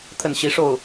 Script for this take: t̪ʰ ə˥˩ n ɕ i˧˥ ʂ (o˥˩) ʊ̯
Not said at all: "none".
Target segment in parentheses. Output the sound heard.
o˥˩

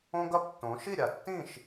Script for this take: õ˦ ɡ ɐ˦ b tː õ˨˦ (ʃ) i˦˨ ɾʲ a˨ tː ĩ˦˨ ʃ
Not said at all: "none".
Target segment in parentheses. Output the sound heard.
ʃ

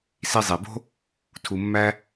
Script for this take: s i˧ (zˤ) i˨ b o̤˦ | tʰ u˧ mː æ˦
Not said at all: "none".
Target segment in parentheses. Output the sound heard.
zˤ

